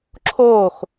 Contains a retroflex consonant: no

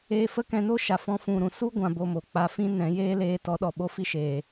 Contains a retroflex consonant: no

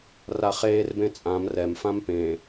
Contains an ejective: yes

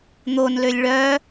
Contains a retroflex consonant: yes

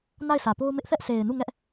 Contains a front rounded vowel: no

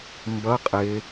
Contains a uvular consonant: yes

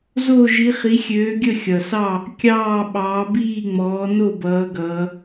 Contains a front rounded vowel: yes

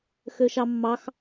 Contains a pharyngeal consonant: no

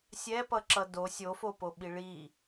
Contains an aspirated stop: no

